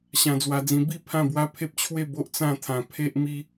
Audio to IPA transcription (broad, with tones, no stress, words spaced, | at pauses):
ɕã˧d͡zwa˧d͡zĩ˧ bi˥˧ pʰã˥˧bwa˦pʰe˦p̚t͡ɕʰwe˥˧ bo˦ʔt͡sã˥˧t̪ʰã˧ pʰe˦ʔmi˦